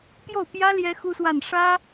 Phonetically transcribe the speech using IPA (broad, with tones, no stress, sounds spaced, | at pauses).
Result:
p j o˥˩ ʊ̯ p j ä˥ l j ɛ˥ x u˥ s w a˥˩ n ʂ ä˥